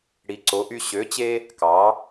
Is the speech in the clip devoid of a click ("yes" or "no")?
no